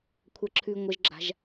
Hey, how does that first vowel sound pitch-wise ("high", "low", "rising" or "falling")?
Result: high